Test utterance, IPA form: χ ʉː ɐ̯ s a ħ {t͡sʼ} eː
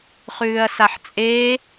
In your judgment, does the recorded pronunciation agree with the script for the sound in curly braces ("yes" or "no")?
yes